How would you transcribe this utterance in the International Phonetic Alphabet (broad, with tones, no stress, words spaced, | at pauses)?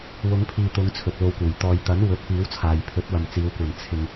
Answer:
wʊ˨˧ŋpʰiː˨ t̪ʊ˨˧ŋ t͡sʰɵ˨t̚lo˧wkuː˨˩j t̪ɔː˨jt̪ɐ˨˥n wɵ˨˥t̚piː˨˥wt͡sʰaː˨j pʰɵ˨˥t̚wɐ˨mt͡siː˨˧wkʷɐ˨n t͡sʰɪ˧ŋ